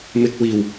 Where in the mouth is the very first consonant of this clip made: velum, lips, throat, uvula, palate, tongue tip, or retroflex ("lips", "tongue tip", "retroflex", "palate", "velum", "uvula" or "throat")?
lips